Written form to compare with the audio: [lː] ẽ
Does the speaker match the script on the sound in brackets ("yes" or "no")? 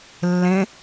yes